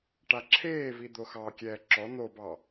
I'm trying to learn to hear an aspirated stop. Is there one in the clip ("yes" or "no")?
yes